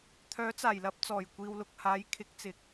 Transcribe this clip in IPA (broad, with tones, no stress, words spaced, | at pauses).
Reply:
t̪ʰœː˨˥t͡saː˨˩jlɐ˧p̚ t͡sɔː˨˩jkʷiː˨wlʊ˨k̚ haː˨˥jkʰɪ˨˥k̚t͡sɪ˨k̚